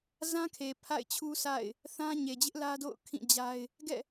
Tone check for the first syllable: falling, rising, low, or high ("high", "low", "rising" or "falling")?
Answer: high